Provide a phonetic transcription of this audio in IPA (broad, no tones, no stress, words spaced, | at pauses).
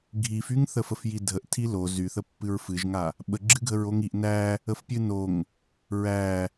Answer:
ɡʱifyŋ θəfəfjidʱəʔ tʰilo zyθəpːɨɹ fɨʒŋa | ɓəɡ͡ǁɨ ɡʱəɹoŋiʔ næ | əfpʲɨnoŋ | ɹæ